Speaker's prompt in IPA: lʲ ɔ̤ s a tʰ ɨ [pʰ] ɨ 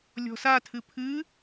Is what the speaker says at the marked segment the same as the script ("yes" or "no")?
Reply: yes